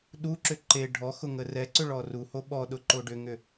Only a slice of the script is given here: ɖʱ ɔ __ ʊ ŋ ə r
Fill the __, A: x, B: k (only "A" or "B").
A